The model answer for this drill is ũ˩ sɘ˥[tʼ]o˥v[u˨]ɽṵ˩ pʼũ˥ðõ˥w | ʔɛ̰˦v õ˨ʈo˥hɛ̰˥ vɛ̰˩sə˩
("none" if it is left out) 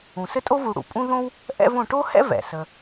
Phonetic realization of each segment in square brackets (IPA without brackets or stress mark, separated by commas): tʼ, u˨